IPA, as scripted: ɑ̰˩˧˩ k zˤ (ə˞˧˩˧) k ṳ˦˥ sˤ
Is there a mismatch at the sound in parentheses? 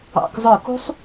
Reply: no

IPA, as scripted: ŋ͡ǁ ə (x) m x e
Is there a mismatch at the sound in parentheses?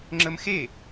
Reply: yes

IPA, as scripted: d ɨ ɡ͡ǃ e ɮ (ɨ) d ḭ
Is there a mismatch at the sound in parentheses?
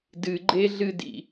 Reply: no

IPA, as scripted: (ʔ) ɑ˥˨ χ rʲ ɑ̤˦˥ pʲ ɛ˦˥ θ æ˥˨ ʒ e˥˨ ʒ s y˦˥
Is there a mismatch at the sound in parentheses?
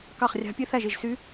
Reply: yes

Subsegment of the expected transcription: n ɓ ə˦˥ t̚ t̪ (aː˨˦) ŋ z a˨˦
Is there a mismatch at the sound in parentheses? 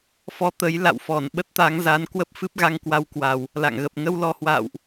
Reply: no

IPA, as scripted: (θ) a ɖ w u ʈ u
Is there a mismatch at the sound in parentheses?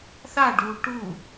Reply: no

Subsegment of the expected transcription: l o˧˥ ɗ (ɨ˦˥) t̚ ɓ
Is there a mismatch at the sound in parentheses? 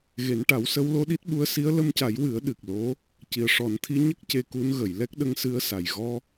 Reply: yes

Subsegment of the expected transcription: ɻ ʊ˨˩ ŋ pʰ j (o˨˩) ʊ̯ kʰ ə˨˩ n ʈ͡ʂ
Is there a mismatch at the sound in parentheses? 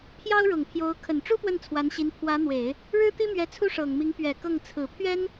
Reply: yes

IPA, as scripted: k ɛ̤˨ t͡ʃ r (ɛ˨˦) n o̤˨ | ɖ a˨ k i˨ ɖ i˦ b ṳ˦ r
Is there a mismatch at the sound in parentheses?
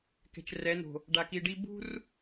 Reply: no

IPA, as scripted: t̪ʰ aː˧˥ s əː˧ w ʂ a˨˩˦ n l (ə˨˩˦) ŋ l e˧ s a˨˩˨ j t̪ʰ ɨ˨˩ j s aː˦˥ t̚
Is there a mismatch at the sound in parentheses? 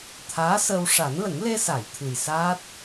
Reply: no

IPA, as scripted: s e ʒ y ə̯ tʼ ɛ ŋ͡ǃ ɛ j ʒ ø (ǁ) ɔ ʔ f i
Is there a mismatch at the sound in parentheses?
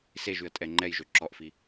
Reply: no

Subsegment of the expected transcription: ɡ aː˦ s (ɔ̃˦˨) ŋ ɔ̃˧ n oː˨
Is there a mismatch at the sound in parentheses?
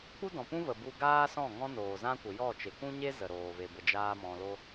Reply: no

